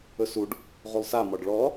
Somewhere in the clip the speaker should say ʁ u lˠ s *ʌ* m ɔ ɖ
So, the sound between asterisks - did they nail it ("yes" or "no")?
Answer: no